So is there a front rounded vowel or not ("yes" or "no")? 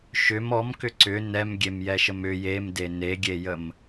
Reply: yes